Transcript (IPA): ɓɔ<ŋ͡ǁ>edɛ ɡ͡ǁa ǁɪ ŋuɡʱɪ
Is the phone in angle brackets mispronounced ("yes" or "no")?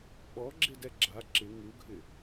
yes